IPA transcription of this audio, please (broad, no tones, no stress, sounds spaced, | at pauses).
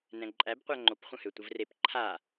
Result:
n ɛ̃ ǃʼ æ b qʷ æ ŋ͡ǃ o p χʷ ə̃ h ø tʷ ə v r e p ǃʰ a